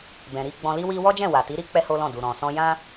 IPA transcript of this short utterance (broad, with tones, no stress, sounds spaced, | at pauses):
b ɛ̃˨ ɾ i˧ ɡ͡b ɔ̃˧ l i˦ w i˦ w ɔ˦ d͡ʒ ɛ̃˦˨ w a˨ t i˨˦ ɾ i˦ k͡p ɛ˦ h o˦ l ɔ̃˦˨ d u˨ ɾ ɔ̃˨ s ɔ̃˧ j ã˦